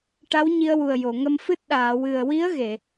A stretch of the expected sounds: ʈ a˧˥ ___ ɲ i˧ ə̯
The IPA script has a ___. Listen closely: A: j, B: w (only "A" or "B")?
B